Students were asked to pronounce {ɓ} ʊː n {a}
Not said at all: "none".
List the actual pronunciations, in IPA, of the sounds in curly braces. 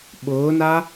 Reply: ɓ, a

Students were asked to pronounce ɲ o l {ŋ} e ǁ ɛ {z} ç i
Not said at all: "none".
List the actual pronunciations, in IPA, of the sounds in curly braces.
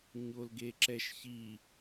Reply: ɡ, ʃ

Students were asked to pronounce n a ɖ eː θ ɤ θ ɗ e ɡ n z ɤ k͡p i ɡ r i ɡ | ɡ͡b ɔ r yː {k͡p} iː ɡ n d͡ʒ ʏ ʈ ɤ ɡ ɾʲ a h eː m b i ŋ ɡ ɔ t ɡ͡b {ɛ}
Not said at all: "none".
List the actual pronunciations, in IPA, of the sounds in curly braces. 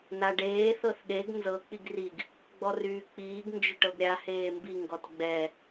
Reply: k͡p, ɛ

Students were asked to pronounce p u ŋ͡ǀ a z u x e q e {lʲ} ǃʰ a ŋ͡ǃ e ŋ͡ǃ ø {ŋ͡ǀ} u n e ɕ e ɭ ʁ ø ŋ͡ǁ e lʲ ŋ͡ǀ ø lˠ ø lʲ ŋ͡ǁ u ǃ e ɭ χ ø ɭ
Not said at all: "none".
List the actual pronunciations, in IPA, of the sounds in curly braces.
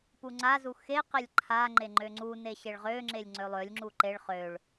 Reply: lʲ, ŋ͡ǀ

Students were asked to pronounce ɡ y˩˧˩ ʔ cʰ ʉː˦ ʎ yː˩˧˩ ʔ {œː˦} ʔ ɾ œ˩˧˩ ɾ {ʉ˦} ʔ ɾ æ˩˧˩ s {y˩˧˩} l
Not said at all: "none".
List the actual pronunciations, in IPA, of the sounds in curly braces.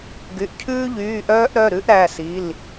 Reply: œː˦, ʉ˦, i˩˧˩

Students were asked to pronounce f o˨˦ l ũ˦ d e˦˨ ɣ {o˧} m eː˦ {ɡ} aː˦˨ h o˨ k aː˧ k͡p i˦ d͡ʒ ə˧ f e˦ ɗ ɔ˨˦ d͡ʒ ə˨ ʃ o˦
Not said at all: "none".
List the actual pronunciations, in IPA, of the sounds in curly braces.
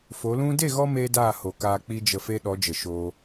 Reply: ɔ˧, d

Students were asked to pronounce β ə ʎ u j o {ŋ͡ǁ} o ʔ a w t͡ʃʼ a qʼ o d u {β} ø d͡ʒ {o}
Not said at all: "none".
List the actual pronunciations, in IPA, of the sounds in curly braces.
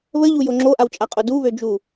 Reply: ŋ͡ǁ, β, u

